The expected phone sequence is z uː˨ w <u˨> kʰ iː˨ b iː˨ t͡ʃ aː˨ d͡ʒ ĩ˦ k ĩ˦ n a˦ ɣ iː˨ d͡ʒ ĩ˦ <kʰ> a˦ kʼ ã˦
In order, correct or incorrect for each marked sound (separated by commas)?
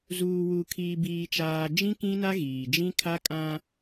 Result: correct, correct